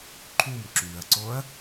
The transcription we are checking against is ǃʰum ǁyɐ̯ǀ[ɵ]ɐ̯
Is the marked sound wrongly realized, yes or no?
yes